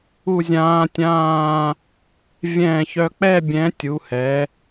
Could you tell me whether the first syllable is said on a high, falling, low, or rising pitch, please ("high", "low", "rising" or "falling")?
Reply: falling